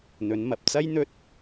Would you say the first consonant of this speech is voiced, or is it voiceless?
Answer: voiced